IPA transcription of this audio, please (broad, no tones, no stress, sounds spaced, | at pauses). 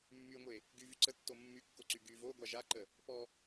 mː y ŋʷ e | ɡ y v y ǀ ə tː o mː y kː o ǀ y ɡ y v o ɡʷ a ʒ a ǃ ə | p ɔ